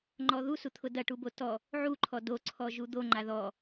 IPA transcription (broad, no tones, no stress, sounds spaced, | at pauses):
ŋ͡ǃ ɔ ð u s u t̪ʰ ʊ d ɐ ʈ u b o t ɔ | ʕ u ǃʰ ɔ d o ǀʰ ɔ ʒ u d̪ o ŋ͡ǃ a ð ɔ